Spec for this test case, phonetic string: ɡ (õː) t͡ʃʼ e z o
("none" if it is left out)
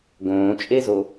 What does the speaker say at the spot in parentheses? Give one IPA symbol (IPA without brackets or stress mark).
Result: õː